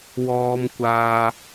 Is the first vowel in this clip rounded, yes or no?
yes